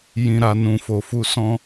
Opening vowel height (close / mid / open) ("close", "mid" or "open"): close